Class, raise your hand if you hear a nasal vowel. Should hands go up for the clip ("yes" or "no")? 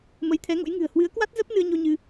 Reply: no